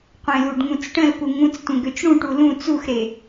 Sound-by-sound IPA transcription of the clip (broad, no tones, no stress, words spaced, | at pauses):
qʷẽluɖŋũt͡sʈə̃l puŋũt͡stʷə̃ ɡøt͡ʃɽũʈu lũ t͡suxɾe